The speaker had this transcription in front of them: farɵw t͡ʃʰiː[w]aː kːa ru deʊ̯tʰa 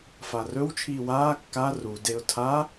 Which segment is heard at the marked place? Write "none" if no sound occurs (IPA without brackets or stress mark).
w